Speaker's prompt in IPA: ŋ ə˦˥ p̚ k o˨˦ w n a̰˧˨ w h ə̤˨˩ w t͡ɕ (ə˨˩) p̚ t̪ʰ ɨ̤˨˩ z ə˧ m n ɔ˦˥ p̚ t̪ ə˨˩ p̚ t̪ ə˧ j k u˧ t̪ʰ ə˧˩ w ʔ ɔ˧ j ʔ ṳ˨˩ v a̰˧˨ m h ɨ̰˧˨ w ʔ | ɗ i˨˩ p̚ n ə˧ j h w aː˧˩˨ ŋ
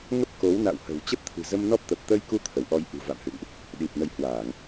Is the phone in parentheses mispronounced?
yes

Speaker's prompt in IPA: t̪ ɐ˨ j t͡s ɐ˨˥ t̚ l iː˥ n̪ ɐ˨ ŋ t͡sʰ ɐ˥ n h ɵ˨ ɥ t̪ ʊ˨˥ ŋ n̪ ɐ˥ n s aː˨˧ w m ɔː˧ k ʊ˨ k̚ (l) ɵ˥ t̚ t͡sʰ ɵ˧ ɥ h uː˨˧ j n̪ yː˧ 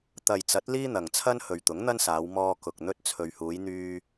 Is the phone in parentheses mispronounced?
yes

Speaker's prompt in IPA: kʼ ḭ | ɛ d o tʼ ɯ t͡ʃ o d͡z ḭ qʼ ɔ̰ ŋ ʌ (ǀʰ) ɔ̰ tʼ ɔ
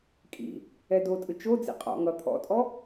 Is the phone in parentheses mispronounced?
yes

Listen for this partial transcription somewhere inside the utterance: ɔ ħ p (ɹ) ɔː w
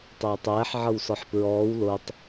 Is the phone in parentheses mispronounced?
no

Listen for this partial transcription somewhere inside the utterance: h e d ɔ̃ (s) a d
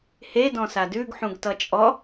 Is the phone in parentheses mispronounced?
no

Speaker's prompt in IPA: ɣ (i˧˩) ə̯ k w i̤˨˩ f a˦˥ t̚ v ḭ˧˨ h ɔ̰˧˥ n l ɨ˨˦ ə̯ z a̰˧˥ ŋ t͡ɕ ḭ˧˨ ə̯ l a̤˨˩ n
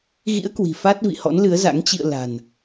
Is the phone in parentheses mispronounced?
yes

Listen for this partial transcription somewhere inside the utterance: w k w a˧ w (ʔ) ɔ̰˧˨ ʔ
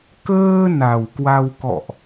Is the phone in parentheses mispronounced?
yes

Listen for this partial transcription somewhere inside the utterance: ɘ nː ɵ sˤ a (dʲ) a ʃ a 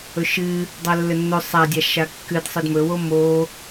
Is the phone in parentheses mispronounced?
no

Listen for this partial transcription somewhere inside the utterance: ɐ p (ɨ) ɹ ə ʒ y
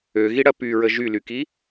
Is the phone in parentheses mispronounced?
yes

